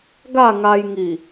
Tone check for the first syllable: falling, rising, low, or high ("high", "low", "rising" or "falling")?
falling